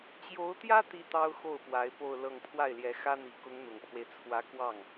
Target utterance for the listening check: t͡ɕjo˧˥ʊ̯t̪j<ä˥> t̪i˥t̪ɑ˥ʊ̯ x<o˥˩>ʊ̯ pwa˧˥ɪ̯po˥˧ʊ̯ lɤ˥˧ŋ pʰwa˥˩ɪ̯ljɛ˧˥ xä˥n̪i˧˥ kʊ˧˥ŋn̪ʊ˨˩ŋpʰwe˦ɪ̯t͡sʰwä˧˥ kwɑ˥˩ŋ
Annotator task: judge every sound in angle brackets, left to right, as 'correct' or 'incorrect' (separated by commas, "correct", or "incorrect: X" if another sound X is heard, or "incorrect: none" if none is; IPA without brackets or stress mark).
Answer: correct, correct